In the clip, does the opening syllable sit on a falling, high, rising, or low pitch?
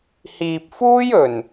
low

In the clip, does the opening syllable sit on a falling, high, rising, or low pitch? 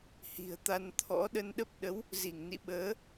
low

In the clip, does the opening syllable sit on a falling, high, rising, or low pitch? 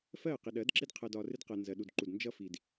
falling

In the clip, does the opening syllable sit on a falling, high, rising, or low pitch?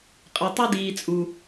low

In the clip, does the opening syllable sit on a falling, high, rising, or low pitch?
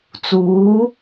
rising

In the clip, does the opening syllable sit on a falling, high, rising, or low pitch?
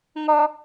high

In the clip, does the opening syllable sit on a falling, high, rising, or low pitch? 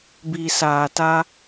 low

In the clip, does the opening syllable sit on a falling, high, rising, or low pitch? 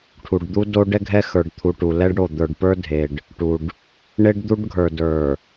low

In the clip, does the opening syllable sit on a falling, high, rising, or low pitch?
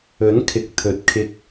rising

